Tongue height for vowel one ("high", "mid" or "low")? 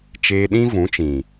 mid